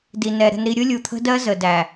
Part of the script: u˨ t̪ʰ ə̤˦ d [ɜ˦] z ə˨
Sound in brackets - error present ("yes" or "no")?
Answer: no